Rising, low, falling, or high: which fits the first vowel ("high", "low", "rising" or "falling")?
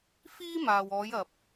high